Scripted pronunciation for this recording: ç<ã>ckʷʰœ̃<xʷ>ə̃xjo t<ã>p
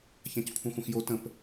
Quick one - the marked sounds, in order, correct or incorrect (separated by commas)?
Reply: correct, correct, incorrect